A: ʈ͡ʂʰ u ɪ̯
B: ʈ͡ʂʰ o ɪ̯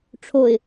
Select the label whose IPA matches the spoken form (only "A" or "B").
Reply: B